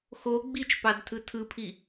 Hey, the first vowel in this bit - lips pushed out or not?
yes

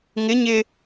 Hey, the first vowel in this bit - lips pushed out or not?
no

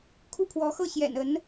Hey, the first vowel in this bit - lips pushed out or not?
yes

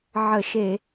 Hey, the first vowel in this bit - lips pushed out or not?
no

